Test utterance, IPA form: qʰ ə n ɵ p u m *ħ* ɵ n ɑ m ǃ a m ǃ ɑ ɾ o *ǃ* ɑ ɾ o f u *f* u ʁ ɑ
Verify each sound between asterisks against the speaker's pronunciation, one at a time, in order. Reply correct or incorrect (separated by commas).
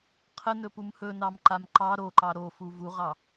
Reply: incorrect, correct, incorrect